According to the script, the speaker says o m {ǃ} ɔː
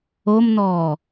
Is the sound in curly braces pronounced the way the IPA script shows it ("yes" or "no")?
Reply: no